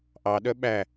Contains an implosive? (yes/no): yes